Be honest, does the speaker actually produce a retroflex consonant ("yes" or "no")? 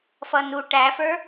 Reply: yes